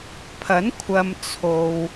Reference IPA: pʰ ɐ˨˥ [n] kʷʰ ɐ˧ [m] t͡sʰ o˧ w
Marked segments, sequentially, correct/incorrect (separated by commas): correct, correct